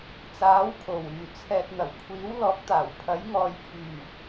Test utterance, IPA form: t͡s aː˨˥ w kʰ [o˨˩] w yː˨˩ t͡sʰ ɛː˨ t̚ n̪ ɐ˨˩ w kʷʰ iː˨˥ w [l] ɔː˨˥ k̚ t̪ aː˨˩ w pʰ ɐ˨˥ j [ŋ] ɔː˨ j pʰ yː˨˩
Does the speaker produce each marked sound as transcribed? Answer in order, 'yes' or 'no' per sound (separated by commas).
yes, yes, yes